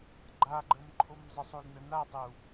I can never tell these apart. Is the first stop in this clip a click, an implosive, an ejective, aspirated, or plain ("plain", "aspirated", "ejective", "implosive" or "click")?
click